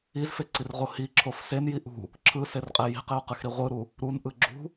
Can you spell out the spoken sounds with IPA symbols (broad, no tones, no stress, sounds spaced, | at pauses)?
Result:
i z f e ǀ i r ʁ o h i ǁʰ o f s e n j i ʔ ṳ | ǁʰ ɯ s e r qʼ e j i̤ q e ʊ̯ q ɯ x ɾ i ʁʷ ɯ ɾ u | ɾ u n ʔ ɯ ɡ͡ǁ ṳ